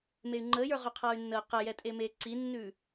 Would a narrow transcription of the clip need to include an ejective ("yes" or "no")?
yes